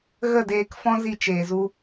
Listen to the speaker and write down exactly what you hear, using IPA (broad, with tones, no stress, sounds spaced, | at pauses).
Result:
ɣ ə˦˨ d eː˧ k f ɔ̃˦ z i˦˨ t͡ʃ eː˨ z u˧